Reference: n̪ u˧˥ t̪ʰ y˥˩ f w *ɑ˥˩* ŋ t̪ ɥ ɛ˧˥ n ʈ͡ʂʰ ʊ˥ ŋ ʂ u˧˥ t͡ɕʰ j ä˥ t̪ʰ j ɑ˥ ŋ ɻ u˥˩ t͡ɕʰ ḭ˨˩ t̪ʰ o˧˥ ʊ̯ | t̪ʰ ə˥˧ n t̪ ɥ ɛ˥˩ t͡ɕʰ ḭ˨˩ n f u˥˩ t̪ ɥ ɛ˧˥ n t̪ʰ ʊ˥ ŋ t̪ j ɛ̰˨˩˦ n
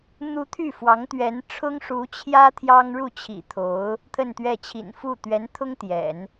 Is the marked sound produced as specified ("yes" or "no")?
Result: no